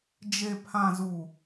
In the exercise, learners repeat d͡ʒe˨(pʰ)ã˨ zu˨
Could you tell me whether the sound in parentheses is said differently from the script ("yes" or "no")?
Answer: no